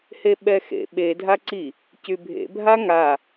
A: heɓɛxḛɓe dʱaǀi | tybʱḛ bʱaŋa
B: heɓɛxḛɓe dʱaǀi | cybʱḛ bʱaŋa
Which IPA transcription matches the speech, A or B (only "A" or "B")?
B